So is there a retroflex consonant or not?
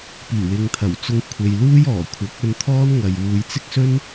no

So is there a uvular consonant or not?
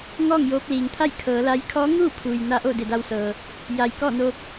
no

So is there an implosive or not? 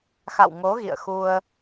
no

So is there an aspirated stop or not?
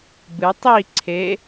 yes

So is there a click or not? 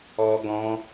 no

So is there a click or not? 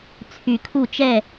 no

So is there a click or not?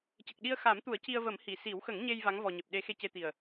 no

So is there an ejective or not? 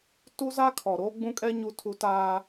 yes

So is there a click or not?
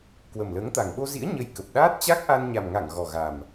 no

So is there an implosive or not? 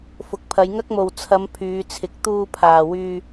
no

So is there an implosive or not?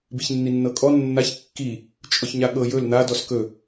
yes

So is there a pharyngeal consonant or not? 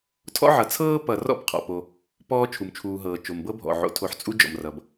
yes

